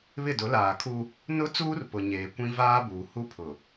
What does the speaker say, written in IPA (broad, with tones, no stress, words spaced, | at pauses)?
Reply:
βɪ˦˨dʊ˨˦ laː˨kʰu˦ | nʊ˦t͡suː˦rpʊ˨ ɲeː˨kʷĩ˦ vaː˦buː˨ hu˦pʰʊ˨